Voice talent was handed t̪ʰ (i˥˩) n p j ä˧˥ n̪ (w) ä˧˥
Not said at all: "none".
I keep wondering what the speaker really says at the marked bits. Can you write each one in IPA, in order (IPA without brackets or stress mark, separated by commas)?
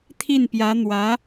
i˥˩, w